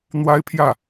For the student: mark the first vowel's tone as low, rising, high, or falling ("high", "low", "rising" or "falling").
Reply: high